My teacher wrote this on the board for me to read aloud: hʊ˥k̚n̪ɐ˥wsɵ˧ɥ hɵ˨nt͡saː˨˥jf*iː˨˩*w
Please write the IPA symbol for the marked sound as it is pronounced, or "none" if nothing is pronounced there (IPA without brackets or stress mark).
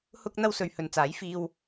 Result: iː˧